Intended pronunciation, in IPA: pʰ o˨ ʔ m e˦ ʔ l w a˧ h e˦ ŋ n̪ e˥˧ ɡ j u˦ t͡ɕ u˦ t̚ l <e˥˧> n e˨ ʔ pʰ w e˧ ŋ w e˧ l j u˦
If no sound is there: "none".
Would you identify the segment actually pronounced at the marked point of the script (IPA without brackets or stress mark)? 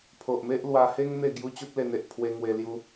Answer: e˧